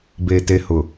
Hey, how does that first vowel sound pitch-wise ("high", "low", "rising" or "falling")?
low